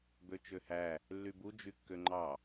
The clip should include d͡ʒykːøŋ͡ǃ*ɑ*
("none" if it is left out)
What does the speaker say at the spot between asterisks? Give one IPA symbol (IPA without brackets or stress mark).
ɑ